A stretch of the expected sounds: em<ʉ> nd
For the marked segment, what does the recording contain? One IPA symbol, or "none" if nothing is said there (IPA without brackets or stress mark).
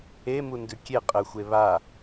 u